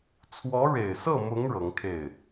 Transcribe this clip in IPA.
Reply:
t͡sʰwɔ˧˥ɻe˨˩ɪ̯sɤ˥˩mʊ˧˥ŋ ɻɤ˧˥ŋkʰe˥˩ɪ̯

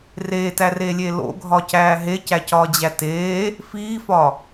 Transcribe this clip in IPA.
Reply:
reːtæreːlʲeː lo̰ɡʱɒcæː ɦecæcɒːd͡ʑæ teː | fiːfɒ

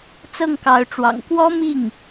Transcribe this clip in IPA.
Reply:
t͡sɤ˥˩ŋkɑ˧˥ʊ̯ʈ͡ʂwɑ̰˨˩ŋ kwɔ˥mi˥˩ŋ

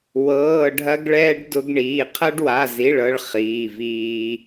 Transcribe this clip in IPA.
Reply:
wɤː˧˥˧ɖʱɐ˥ɡɭɛː˥ɖ dʊ˥ɡɳiː˧˥˧ qʰɐ˥ɖwa˧˥˧zi˧˥˧ɭ ɤ˥ɭχiː˧˥˧viː˥

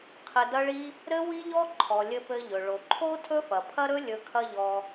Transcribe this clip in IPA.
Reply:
qʰɘ˧dɐ˥ɭi˥ | ɾɘ˥ wi˥ʎɔ˥ ǃʰɔ˩lʲɘ˧ pɘ˧ʎɵ˩ ɭo˩ǃʰo˥ tʰɵ˥fɐ˩pʰɐ˥ɾɵ˥ lʲɵ˧kʰɐ˥ʎɔ˧

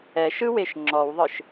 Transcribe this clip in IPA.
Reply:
ɛʃɯweʃ ŋ͡ǁɔwðˤɯʃ

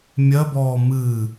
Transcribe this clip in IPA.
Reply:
mʲɜbɔː mɨː

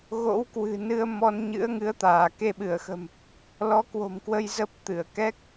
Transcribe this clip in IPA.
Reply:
ɣo̰˧˥wkwɨ̤˨˩nɨ˧ə̯ mɔ˧n ɲɨ̰˧˥ə̯ŋɨ˨˦ə̯t̪aː˧˩ ke˧ɓɨ˧˩ə̯xə̤˨˩m | lɔ˨˦kwo̤˨˩mkwə˧j zə˦˥p̚t̪ɨ˧˩ə̯ kɛ˦˥k̚

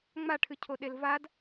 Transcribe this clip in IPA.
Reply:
ŋ͡maʈʰɨcʰoɗel vad

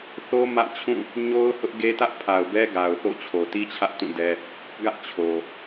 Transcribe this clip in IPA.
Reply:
θo˦ mä̰˦˨t͡ɕʰũ˦˨ | ɲo˦ʊ̯hʊ˦ʔ ɡe˦tä˦ʔ pʰa˨ʊ̯bɛ˦ ɡa˨ʊ̯θo̰˦˨ t͡ɕʰo˨ti˦t͡ɕʰä˦ʔ tũ˦˨dɛ˦ | ɡä˦ʔ t͡ɕʰo˨

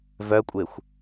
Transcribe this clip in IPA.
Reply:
vœkʷʼexʷ

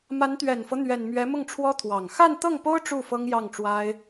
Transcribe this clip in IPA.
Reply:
ma˧˥nt̪ɥɛ˨˩nfɤ˦ n̪ɥɛ˨˩nmɥɛ˧˥ mʊ˥˩ŋʈ͡ʂʰwɔ˥t̪ʰwɑ˨˩ŋ xa˥˧nt̪ɤ˥˩ŋpo˥ʊ̯ ʈ͡ʂu˥˩ fɤ˥ŋjɑ˥˩ŋʈ͡ʂwa˥ɪ̯

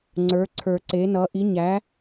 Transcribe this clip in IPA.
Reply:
ŋ͡ǀə˞˩˥ǀʰə˞˨˩˦ǀe˩˥nʌ˩˥ ʔi˩˥ɲæ˩˥

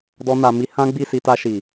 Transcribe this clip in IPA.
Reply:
dɔ˦na˧mi˦ hã˦ɡ͡bi˦˨si˧ta˧ ʃi˨

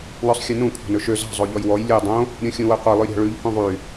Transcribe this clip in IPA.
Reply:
wœsˤxʲʉnũ kʷʰɑ̤nɵʃø zɑ̤ zˤoʎɔjwɔj lʲu dˤõ | ɾʲũxʲũwœqʷe lˠʉɾʲɑ̤ɭʉʎ hũðˤy

